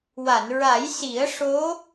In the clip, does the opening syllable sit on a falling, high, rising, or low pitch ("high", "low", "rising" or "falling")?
low